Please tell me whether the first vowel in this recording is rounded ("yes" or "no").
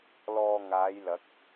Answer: yes